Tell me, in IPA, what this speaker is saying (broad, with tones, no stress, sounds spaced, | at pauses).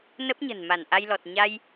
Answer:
n ə˦˥ p̚ ɲ ə̤˨˩ n m a˧˩ n ʔ a˧ j l ɔ˨˩ t̚ ɲ a˧ j